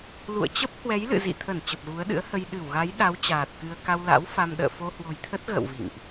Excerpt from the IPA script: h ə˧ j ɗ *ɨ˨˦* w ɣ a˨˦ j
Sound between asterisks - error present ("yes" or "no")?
yes